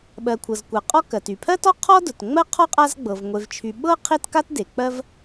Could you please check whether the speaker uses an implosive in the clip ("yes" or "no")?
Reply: yes